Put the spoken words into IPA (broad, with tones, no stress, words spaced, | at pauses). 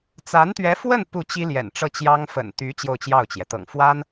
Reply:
t͡sa˧˥nt̪ɥɛ˧˥fwə˥˧n pu˥˩t͡ɕi˥ ljɛ̰˨˩nʈ͡ʂɤ˥˩t͡ɕjɑ˥ŋ fə̰˨˩nt̪y˧˥ t͡ɕjo˥˧ʊ̯t͡ɕjɑ˥˩ʊ̯t͡ɕjɛ˩ t̪ɤ̰˨˩ŋfwa˥n